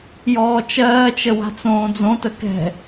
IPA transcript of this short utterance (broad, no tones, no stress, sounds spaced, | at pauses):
j ɔː t͡ʃ ɜː t͡ʃ ə w a̤ t͡s õː d͡z õ t ə k ɛ̤